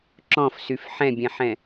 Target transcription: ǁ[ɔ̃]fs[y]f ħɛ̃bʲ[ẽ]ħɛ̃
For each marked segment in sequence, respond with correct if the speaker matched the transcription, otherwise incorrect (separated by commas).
correct, correct, incorrect